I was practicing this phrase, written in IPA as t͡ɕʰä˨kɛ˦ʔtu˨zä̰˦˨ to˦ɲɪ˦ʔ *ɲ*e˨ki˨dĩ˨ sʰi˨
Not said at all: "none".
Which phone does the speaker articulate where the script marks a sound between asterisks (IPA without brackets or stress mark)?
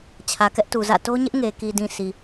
ŋ